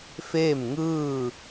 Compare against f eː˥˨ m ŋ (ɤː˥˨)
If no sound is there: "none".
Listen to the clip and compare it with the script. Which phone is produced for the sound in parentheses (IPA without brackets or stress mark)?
ɯː˥˨